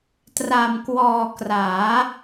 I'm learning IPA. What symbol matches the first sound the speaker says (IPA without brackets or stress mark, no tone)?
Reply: t